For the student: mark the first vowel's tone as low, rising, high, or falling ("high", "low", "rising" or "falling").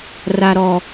low